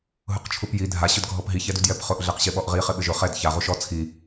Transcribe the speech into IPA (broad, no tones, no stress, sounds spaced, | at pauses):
ɦ ʊ q t͡ʃʰ u p j i dʱ a ɕ ʊ d ɡʱ ɔ p ɦ i ç ɛ d u d j ɛ p χ ʊ ʔ ɮ ɛ q ɕ ɪ ɓ ɔ ʔ ʁ i χ ɪ ɓ ɪ ʒ ʊ χ ɛ d ç a ʁ u ʃ ɔ t͡sʰ i